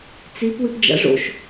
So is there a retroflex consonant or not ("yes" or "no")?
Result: yes